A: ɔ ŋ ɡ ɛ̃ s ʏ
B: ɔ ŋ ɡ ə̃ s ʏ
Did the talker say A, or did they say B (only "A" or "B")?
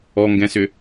A